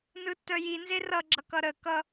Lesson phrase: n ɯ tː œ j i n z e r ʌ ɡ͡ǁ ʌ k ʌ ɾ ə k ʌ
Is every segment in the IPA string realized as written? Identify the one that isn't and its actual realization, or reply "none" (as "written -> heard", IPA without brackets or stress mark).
none